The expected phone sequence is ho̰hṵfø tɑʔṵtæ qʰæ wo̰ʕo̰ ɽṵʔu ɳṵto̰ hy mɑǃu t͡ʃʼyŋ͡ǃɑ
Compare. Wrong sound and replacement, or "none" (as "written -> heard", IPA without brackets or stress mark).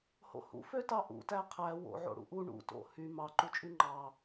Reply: none